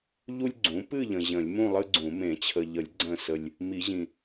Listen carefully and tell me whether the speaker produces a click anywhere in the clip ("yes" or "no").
yes